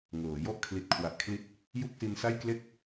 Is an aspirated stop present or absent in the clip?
present